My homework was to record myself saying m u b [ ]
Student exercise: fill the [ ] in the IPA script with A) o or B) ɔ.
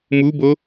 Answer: A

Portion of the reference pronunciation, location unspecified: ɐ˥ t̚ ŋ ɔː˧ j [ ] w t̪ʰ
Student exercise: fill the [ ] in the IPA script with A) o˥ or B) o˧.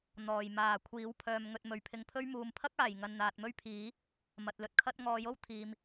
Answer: A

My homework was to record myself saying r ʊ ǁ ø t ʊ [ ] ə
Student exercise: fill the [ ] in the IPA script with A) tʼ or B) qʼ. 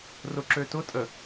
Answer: A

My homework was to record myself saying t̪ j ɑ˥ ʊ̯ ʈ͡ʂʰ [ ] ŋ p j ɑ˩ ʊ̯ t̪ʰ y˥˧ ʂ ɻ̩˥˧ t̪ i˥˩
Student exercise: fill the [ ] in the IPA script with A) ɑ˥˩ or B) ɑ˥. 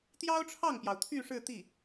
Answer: A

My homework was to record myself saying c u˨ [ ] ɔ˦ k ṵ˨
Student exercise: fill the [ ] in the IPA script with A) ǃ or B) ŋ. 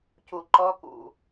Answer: A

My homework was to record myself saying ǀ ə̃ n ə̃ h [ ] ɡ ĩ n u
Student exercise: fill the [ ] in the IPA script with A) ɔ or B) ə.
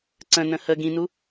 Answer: B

